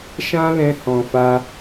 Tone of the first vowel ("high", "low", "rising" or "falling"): high